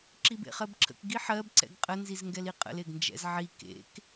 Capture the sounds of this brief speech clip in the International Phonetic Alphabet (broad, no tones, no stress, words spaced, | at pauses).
ǁibḛχɜbǁʰə̰k ɡiħɜb ǀɛ̰ɡqʼə nzizŋɡɛliqʼə̰l eɡnd͡ʒɛ̰zʕi kḛk